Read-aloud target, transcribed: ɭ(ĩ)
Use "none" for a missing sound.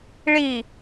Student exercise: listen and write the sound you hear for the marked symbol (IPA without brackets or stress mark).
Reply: i